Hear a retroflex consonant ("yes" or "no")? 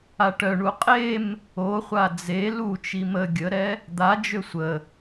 yes